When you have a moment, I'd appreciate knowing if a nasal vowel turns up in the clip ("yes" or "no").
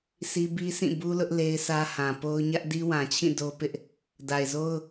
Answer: yes